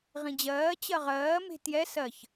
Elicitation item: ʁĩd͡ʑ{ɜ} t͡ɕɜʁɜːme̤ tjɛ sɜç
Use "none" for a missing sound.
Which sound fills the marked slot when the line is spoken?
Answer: ɜː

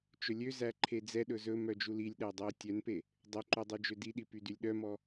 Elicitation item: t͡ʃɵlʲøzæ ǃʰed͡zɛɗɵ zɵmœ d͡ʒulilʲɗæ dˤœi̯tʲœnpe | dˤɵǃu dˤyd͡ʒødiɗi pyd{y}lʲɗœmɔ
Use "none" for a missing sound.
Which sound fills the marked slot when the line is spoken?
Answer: y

